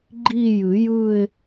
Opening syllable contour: falling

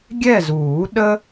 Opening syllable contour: falling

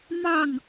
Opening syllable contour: falling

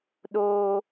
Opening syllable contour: low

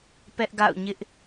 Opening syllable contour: high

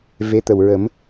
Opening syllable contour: rising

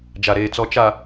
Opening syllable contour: low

